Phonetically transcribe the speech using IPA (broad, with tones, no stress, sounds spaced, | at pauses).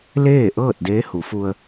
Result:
l eː˥˨ ʔ ɤː˥˨ t̚ d eː˧˥ h u˩˧ f u˧ ə̯